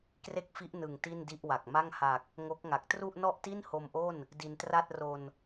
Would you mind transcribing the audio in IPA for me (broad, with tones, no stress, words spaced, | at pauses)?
kre˥˩k̚fi˦˥ʔnɯ˨˩ŋ ti˥˩ndi˥˩ʔwa˨˩k̚ ma˥˩ŋha˨˩k̚ | ŋo˦˥k̚ ŋa˨˩k̚ tru˥˩ʔnɔ˥˩ʔti˥˩n ho˧mʔo˥˩n | di˧ntra˥˩t̚ro˧n